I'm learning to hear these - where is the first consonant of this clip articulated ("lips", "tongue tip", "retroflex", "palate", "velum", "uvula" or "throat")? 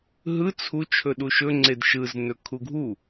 throat